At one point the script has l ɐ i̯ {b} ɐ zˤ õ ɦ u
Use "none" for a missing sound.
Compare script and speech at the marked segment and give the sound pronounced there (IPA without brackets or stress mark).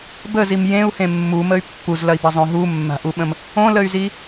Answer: b